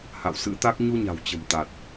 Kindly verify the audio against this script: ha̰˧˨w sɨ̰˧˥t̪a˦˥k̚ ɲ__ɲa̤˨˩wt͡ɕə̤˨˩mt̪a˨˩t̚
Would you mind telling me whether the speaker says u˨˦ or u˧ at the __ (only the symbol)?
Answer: u˧